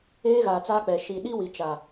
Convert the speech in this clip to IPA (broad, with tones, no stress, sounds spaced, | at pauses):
eː˦ ɣ aː˨ t͡s aː˦ k͡p ɛ˨ ʃ i˨ ɗ i˦ w i˨ t͡ʃ a˨